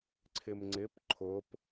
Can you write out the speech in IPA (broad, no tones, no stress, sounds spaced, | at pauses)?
ǀʰ ɪ m ŋ͡ǀ ɪ p ǃʰ ʊ p